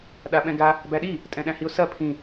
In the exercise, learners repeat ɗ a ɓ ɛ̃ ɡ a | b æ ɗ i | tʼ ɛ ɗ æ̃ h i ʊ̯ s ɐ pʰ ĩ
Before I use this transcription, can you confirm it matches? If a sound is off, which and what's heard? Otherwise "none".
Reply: ɛ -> ɛ̃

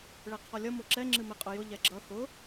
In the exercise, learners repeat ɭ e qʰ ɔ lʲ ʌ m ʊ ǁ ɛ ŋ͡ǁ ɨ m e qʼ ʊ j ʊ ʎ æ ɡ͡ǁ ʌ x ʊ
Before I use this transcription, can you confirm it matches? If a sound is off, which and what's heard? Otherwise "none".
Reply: æ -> ɛ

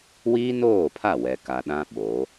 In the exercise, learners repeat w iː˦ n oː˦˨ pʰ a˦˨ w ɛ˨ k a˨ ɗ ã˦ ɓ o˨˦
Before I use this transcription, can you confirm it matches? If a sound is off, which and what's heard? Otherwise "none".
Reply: none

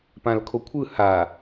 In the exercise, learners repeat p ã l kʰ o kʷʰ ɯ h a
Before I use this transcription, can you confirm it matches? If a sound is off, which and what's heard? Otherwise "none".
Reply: none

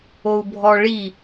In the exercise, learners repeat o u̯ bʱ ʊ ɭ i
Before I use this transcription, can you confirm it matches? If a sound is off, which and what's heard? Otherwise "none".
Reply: ʊ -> ɔ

